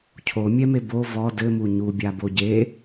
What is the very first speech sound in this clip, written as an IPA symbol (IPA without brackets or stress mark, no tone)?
cʰ